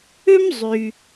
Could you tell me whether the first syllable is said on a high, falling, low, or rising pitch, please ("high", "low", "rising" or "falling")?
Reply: high